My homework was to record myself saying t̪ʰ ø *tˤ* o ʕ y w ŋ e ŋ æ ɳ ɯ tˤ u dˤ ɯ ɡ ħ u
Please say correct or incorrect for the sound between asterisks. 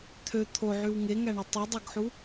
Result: incorrect: t̪ʰ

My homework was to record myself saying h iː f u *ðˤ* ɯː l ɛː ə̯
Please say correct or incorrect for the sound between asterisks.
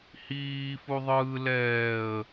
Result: correct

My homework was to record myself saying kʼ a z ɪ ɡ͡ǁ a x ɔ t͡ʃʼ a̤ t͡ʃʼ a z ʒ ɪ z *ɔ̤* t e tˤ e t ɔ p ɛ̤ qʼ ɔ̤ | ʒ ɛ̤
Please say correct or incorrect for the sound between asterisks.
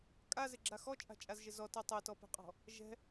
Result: incorrect: ɔ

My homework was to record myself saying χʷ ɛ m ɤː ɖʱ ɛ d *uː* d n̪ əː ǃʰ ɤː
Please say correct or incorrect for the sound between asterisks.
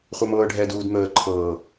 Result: correct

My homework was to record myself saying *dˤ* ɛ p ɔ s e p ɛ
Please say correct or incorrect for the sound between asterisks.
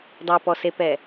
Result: correct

